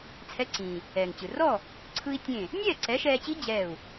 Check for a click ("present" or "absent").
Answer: present